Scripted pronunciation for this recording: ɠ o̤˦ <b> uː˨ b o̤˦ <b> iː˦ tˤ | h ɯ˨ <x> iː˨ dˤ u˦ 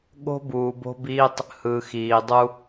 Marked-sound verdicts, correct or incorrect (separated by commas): correct, correct, correct